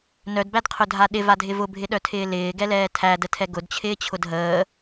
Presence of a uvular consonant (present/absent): present